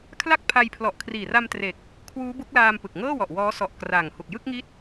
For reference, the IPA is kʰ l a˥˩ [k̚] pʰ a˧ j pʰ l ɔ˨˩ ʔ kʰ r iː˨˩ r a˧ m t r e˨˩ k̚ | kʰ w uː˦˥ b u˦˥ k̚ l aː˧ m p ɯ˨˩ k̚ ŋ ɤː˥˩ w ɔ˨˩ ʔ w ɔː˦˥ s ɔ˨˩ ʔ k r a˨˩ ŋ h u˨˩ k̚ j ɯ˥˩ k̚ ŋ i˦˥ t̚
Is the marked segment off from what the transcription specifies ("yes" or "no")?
no